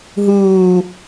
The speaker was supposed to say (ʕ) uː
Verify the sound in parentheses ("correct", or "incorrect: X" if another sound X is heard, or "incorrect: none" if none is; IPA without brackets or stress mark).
incorrect: ɦ